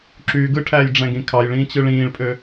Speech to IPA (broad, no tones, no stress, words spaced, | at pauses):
ǁy ɡɯʈʰæːjɖ͡ʐæ̃ɡĩ kʰɑjɭĩːt͡ɕɯ ɭĩːɭpʼø